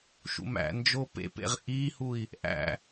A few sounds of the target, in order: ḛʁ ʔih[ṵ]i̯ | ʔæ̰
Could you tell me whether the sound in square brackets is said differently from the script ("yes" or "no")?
yes